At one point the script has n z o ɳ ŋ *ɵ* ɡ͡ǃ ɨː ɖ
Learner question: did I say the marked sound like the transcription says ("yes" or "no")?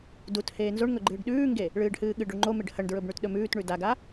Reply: yes